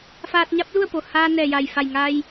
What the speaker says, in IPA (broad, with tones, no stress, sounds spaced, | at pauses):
f aː˧ t̚ ɲ a˧˥ p̚ l u˥˨ ə̯ p o˩ h aː˧ n ɛː˧˩ j a˧˩ j f a˧˩ j ŋ a˧ j